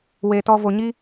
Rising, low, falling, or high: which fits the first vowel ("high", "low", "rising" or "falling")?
low